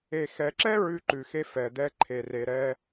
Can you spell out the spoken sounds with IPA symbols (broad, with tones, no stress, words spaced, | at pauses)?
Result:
e˨xɛ˨ǁɛ˦ ɹʉ˦ǃʉ˨xe˦ fɛ˨d̪ɛ˦ǃʰe˨ re˨ɾɛ˦